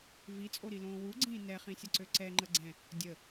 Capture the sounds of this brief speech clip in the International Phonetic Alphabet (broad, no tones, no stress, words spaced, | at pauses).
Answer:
vit͡sʼoɾilõː wuɡ͡ǀĩː nɛχĩsʲəǀø ǀɛŋ͡ǃə ɡ͡ǀɛ̃ | dʲə